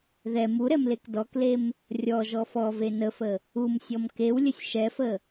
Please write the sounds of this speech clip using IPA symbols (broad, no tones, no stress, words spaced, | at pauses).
ðɛ muɾɛmlek dɔklem | rʲɔʒɔ fɔve nəfə | umsʲɔm kewlʲəsʲ ʃɛfə